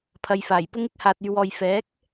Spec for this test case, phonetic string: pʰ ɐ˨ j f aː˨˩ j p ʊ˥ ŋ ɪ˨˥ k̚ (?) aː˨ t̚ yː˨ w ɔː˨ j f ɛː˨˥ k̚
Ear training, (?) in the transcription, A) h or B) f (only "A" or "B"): A